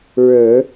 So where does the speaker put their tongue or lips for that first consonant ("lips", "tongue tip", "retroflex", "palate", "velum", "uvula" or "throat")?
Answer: retroflex